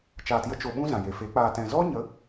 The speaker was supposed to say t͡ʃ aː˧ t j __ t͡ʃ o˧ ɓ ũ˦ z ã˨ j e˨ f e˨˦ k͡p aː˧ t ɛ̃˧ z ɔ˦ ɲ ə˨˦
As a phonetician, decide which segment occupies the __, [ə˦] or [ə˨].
ə˦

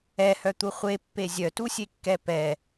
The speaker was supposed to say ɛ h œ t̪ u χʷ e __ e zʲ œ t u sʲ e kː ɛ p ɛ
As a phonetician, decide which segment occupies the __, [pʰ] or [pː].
pː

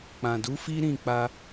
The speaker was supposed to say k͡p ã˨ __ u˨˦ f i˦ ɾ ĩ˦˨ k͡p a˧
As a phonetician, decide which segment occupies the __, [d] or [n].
d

